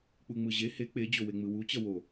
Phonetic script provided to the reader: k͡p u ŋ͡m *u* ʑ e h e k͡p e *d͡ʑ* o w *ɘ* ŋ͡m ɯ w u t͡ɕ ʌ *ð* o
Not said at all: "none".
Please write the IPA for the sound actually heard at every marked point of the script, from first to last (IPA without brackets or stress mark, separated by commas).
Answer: ɯ, d͡ʑ, e, w